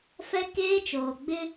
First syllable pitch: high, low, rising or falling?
high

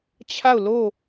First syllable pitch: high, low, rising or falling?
falling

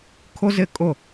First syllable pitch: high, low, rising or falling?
high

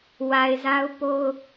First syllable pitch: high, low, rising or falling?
low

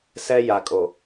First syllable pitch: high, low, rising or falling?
high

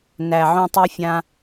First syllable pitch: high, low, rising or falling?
low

